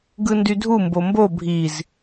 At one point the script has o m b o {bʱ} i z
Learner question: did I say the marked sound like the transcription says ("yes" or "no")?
yes